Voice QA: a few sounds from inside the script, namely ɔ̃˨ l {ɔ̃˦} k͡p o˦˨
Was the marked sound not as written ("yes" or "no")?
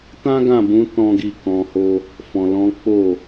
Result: yes